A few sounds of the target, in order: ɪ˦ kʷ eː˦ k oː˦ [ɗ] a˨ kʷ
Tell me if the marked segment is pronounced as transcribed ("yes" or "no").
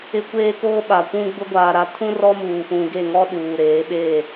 no